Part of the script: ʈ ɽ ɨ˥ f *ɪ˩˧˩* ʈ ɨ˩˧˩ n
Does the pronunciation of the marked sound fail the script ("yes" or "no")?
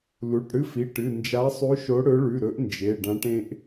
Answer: yes